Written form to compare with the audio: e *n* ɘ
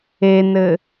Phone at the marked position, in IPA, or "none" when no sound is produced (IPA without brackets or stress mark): n